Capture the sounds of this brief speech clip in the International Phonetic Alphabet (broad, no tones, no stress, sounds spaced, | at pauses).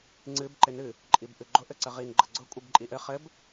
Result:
ŋ͡ǀ ɨ b ǃ ɪ n ɨ | ǃʼ i b ʔ ɨ ɡ͡ǃ ʊ ʔ ɘ ǀ ə ʁ i n ɡ͡ǃ ə ɡ͡ǀ ʊ kʷʼ i b ǃʼ i ʔ ɘ χ ɘ b